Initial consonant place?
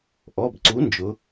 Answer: glottal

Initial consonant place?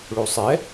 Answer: retroflex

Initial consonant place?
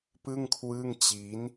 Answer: labial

